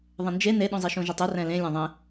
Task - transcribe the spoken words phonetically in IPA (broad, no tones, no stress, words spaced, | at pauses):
ðˤẽnd͡ʒe neɗũzˤiʃũ ʒutˤu rɛ̃lẽ lʲãðˤẽ